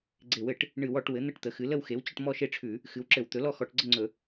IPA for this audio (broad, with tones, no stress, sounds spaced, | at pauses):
ɡ͡ǀ e˧˩˧ w ɘ˧˩˧ ʈ | ɳ ɨ˧˩˧ w ɔ˧˩˧ ʈ w ɘ˩˥ n̪ ɘ˥˨ ʈ t̪ ə˩˥ x ɨ˩˥ l ə˥˨ w x e˩˥ w t͡ɕ ə˥˨ ʈ m ɔ˥˨ ʃ e˥˨ ʈ͡ʂʰ ʉ˧˩˧ | x ɨ˩˥ w ǁ ɘ˧˩˧ w t̪ ɵ˩˥ l ɔ˥˨ x ɔ˧˩˧ ʈ ɡ͡ǀ ə˥˨ ŋ͡ǀ ɵ˧˩˧